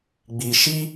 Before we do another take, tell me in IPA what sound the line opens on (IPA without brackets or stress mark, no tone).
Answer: ɡ͡b